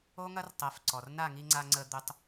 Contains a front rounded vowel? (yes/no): yes